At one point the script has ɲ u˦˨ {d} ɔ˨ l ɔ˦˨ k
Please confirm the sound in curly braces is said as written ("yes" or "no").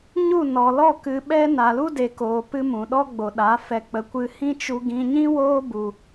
no